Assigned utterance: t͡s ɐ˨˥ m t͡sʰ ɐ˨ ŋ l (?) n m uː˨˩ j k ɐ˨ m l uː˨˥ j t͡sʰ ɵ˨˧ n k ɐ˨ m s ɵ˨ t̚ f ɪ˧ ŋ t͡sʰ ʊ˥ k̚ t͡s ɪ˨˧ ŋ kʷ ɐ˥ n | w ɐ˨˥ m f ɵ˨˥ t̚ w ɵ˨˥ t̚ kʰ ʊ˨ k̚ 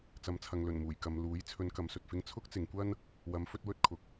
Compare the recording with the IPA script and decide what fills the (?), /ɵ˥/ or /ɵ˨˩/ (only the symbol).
ɵ˨˩